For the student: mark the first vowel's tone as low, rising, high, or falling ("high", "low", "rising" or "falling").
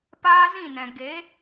high